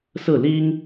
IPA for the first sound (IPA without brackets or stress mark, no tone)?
s